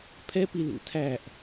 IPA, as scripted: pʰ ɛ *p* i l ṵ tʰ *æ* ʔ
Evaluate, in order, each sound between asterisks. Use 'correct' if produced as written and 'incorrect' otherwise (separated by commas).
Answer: correct, correct